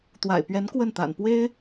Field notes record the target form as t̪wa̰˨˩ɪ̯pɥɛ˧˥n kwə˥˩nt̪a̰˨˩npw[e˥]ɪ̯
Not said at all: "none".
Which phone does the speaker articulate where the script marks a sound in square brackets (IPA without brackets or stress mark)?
e˥